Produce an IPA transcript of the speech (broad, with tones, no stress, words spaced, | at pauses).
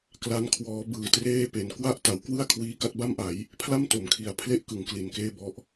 kla˦˥n kʰwɔː˦˥ bɯː˨˩treː˥˩pe˨˩n kwa˥˩ʔta˩˦wkwɯ˥˩a̯kʰwiː˧ ka˥˩t̚ba˥˩mʔa˩˦j | pʰla˥˩mto˩˦m kʰi˨˩a̯pʰle˥˩ʔkɯ˩˦ŋ kli˨˩nkeː˥˩bɔ˦˥ʔ